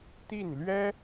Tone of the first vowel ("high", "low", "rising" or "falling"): falling